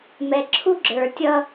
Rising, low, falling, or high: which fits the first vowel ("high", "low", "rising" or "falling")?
low